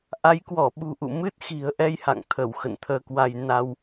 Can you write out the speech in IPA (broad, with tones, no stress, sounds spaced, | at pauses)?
ʔ a˨˦ j k w ɔ˧˩ ɓ ṳ˨˩ ʔ ṵ˧˨ m ɨ˦˥ t̚ x i̤˨˩ ə̯ ʔ ɛ˧ j h a̰˧˨ ŋ t̪ʰ ə˧˩ w x ə̰˧˨ n t̪ʰ əː˧ k w a˧ j n a˧ w